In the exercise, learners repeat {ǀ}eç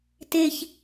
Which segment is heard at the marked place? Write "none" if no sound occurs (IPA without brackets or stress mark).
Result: t